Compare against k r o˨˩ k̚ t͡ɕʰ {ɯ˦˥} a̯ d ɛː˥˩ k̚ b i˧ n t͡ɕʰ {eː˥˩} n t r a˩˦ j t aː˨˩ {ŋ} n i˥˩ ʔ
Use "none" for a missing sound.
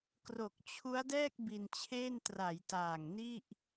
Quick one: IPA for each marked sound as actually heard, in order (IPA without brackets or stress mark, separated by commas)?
u˦˥, eː˥˩, ŋ